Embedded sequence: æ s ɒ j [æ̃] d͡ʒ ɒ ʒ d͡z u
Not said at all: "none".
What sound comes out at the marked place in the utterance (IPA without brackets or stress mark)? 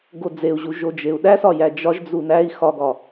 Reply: æ